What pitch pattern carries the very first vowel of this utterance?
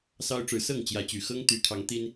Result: high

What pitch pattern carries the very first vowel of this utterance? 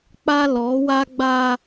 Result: high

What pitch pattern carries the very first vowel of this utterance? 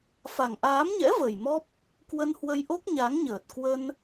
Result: low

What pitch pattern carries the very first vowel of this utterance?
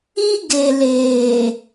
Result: high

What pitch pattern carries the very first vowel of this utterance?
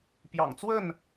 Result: low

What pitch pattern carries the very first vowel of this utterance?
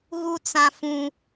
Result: high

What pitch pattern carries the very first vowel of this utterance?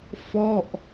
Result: falling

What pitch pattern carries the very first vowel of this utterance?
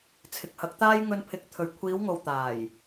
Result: low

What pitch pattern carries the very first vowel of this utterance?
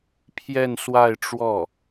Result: falling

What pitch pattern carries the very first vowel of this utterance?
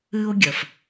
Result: high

